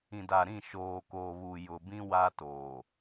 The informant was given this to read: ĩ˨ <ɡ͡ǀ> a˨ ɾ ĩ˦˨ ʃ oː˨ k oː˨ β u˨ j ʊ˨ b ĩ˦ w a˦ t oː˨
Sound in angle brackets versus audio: incorrect: d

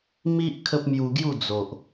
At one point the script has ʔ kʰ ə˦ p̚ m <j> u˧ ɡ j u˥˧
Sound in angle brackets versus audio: correct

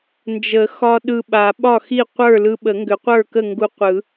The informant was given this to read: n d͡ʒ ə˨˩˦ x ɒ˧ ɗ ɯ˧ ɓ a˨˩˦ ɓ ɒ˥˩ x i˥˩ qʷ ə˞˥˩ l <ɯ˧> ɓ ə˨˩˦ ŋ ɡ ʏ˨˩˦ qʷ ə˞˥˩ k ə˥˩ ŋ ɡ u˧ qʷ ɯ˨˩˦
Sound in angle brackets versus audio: correct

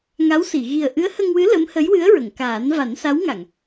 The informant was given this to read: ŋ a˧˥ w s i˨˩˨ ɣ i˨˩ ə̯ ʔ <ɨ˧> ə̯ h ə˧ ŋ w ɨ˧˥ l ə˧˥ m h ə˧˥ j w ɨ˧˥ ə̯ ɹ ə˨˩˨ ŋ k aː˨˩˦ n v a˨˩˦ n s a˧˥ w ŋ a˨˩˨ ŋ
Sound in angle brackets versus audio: incorrect: ɨ˧˥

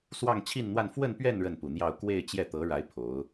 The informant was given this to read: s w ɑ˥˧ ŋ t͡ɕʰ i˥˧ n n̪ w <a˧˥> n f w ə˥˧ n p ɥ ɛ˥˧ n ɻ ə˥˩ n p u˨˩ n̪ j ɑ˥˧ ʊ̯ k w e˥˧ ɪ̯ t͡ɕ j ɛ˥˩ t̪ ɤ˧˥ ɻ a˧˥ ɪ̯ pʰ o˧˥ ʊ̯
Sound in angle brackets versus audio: incorrect: a˥˧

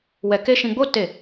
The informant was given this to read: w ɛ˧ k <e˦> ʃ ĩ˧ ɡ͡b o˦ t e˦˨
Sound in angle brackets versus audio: correct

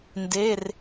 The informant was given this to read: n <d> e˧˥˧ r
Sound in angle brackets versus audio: correct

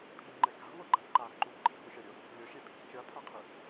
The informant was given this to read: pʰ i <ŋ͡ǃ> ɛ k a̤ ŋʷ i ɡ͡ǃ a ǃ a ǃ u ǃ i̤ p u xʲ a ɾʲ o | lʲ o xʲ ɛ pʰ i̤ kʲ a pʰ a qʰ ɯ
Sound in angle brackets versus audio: correct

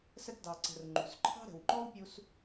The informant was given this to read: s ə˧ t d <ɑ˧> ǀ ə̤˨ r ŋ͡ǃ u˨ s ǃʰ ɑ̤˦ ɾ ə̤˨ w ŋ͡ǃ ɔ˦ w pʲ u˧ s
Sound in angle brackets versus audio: incorrect: ɑ˨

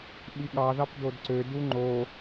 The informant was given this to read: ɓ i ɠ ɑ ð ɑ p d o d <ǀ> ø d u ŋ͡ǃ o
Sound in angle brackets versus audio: correct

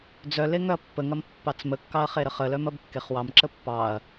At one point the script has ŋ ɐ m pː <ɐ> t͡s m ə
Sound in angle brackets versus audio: incorrect: ɑ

